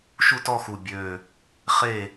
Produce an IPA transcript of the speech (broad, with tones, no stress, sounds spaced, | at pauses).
ʃ u˦˨ t ɔ˦˨ x u˨˩ bʲ ø˨˩ | χ e˦˨